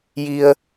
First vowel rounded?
no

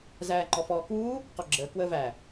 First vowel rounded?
no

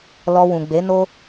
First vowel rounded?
yes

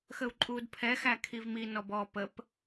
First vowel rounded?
no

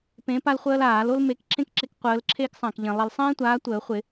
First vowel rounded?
no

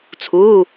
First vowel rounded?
yes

